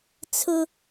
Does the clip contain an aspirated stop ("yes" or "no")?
yes